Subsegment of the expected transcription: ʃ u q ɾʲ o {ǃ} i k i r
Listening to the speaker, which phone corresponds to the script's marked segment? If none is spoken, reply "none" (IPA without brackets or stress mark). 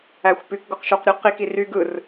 q